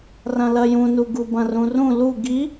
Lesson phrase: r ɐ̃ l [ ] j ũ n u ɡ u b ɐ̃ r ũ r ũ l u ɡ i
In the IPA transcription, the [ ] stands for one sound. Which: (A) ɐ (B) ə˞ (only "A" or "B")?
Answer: A